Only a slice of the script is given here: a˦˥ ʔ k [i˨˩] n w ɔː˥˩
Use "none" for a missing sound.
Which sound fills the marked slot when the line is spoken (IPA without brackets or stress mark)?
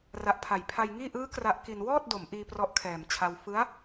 i˧